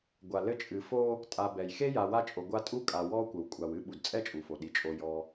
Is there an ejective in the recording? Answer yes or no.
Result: yes